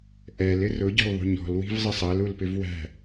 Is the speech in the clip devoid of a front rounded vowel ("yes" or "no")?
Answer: yes